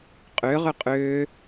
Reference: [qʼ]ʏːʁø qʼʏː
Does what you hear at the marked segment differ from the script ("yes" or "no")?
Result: no